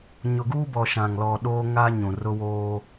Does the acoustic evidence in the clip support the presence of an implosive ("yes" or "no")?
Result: yes